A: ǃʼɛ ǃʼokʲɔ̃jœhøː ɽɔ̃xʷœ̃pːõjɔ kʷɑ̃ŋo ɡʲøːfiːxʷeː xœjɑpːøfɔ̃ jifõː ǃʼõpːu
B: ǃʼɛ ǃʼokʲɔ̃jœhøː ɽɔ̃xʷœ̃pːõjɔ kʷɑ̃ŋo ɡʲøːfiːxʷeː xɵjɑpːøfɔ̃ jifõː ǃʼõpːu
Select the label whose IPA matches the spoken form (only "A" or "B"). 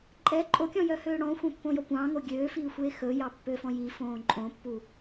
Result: B